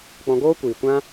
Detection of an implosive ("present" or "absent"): absent